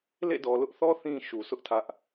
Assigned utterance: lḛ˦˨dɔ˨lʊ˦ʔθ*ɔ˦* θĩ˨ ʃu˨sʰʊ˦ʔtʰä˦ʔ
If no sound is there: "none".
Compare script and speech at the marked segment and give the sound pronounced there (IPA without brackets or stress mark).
ɔ˦